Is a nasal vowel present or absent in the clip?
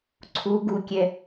absent